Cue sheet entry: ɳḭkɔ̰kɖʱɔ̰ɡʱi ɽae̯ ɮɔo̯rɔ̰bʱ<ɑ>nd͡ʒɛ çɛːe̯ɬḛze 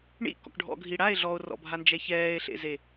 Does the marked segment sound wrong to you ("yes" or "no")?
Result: yes